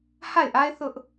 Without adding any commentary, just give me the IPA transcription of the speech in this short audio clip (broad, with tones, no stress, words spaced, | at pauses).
ha˦˨ɪ̯ʔa˦ɪ̯ θʊ˦ʔ